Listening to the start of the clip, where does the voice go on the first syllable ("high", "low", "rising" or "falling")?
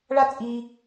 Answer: high